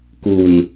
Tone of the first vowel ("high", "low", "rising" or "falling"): low